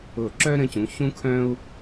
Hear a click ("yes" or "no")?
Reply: yes